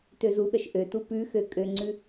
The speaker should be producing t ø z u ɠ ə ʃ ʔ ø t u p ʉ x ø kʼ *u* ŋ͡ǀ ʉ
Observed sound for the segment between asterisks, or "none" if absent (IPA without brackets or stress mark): ø